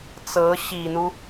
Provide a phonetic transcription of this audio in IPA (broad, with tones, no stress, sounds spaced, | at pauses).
t͡s ɤ˧˥ ɕ i˨˩ n̪ u˦